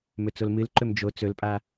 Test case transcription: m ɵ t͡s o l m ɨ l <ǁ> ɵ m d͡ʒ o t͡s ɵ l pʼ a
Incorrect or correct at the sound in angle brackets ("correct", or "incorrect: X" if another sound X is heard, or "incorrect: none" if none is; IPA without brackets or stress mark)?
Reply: incorrect: ǃ